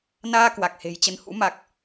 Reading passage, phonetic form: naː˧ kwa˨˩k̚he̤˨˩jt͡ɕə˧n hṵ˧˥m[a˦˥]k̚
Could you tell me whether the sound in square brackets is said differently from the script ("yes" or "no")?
yes